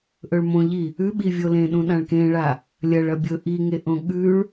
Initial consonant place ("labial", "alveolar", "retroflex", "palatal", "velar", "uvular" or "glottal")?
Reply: glottal